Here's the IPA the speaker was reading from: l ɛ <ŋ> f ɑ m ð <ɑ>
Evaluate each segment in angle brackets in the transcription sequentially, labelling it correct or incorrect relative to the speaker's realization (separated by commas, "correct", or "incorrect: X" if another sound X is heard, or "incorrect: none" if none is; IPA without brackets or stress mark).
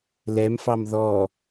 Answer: incorrect: m, incorrect: ɔ